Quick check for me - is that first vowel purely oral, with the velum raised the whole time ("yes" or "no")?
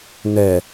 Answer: yes